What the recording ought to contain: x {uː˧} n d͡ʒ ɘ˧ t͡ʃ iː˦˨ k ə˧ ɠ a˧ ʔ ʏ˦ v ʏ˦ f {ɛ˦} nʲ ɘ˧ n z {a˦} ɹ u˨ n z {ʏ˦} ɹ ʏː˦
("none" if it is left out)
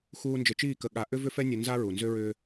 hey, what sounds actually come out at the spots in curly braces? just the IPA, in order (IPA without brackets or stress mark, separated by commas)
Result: uː˧, ɛ˦, a˦, ʏ˦